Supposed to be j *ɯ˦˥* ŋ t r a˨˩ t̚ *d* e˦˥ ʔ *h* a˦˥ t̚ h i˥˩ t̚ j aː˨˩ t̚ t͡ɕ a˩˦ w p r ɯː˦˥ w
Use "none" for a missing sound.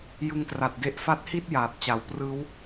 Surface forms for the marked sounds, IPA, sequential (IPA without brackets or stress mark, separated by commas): ɯ˦˥, d, f